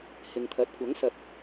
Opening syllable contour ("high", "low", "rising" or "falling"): low